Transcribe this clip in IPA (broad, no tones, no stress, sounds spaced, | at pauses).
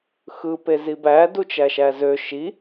x ɯ p e z i b æ d u t͡ʃ æ ʃ æ z ø ʃ i